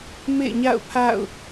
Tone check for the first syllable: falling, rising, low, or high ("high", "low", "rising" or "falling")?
falling